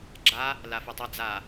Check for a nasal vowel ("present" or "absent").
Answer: absent